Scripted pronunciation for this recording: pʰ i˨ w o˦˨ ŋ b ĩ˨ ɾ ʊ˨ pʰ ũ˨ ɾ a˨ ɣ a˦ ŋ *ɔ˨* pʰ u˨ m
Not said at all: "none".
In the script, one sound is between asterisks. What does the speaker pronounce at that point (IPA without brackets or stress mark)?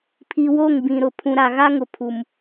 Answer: ʊ˨